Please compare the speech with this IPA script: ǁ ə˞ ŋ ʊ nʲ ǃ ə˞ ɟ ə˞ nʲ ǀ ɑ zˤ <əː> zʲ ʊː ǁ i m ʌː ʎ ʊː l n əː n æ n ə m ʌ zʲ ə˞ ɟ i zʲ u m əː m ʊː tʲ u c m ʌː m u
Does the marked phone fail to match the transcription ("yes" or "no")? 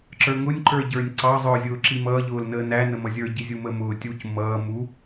yes